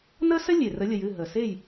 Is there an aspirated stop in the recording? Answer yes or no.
no